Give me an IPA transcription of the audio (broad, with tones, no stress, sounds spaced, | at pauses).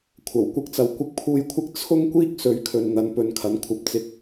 kʷʰ ɐ˨˩ w kʷ ɐ˧ k̚ t͡s ɐ˨ w kʷ ɪ˨ k̚ pʰ uː˨ j kʷʰ ɪ˧ k̚ t͡sʰ ʊ˥ ŋ kʷ iː˥ k̚ s ɵ˨˥ ɥ kʰ ɵ˨ n n̪ ɐ˨˧ n p ɵ˧ n kʰ ɐ˨˥ n kʷʰ ɐ˧ p̚ t͡s ɪ˧ k̚